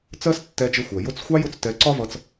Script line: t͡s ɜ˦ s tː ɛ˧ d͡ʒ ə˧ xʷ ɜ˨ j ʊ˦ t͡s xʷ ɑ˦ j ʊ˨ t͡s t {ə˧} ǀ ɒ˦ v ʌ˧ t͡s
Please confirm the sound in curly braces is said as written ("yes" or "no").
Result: no